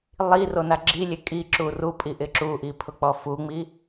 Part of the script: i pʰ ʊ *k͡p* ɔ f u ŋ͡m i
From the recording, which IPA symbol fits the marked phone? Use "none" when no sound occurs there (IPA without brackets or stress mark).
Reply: k͡p